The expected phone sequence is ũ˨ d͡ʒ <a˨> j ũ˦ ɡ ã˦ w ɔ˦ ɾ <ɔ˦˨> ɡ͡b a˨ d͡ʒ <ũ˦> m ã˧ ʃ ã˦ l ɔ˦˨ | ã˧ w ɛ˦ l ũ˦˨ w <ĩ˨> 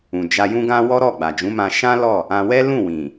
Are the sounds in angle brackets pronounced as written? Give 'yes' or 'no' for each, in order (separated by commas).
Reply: no, yes, no, yes